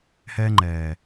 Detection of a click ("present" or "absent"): present